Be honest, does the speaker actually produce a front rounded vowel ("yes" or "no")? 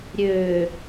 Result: yes